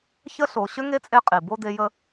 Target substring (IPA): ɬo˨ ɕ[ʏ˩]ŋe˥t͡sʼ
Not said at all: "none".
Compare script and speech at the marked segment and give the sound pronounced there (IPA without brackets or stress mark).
ʏ˥